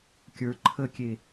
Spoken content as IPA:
kʲ ə˞ ǃʰ ə kʲ e

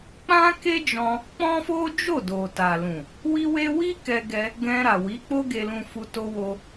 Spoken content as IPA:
k͡p ã˦ k e˦ d͡ʒ ɔ̃˧ | k͡p ɔ̃˦ f o˦ d͡ʒ o˦˨ d o˨ t a˨ l ũ˨ | w i˦ w e˦ w i˦ k ɛ˧ ɡ ɛ˧ | ɡ ɛ̃˧ ɾ a˨ w i˨˦ k͡p o˦ ɡ e˧ l ũ˧ f u˧ t o˧ w o˧

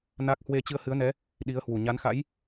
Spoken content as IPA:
n a˦˥ k̚ h w e˧ t͡ɕ ɨ˧ ə̯ h ɨ˨˦ ə̯ n ɛ˨˦ | ɗ i˨˦ ə̯ h w u˨˩ ɲ a˨˦ n x a̰˧˥ j

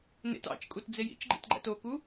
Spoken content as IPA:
n ḛ t ɑ̰ t͡ʃ kʼ u t d͡z e j ḭ t͡ʃ ɡ͡ǃ ḛ t ɡ͡ǃ æ̰ t o k u

